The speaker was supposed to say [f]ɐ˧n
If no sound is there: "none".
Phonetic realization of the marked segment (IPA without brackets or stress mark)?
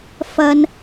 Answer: f